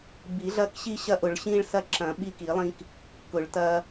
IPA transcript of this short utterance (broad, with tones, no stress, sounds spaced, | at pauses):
b i˨˩˦ ɮ ɐ˦ k ɕ i˦ ɕ ɐ˦ ʔ ʊ˨˩˦ ɭ ɕ ĩ˦ ɭ s ɐ˦ ǁ ɐ̃˨˩˦ ɓ i˦ k i˨˩˦ lˠ ĩ˦ k | k ʊ˨˩˦ ɭ t ɐ˦